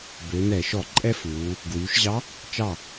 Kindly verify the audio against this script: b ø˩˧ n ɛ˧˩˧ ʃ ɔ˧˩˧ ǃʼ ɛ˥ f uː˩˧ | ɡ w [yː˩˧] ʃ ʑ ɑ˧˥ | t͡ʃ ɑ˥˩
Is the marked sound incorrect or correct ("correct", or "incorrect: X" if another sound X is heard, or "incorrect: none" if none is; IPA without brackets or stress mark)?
correct